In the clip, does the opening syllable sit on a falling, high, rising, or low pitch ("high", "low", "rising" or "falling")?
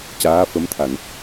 rising